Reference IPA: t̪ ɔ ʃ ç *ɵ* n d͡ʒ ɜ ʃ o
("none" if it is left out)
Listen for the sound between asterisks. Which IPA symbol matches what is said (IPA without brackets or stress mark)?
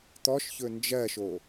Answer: ɵ